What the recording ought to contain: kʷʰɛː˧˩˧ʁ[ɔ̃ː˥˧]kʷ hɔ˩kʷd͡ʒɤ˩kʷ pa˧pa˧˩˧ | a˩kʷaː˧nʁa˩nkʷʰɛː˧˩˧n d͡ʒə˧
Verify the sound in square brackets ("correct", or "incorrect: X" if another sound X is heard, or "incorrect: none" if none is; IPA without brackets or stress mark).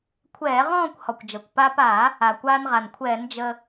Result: correct